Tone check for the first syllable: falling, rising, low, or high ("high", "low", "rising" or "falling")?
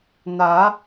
rising